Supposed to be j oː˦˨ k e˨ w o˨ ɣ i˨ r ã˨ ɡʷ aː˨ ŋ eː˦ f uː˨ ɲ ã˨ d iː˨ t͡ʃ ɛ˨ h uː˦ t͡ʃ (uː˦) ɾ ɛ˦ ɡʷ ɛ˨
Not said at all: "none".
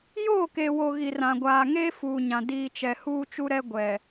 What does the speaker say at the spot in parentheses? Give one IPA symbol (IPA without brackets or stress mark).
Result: u˦